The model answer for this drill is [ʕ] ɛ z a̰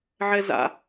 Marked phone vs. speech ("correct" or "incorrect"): correct